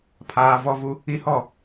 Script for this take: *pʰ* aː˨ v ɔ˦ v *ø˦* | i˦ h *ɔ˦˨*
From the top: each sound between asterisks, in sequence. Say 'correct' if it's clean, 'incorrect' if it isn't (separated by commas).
correct, incorrect, correct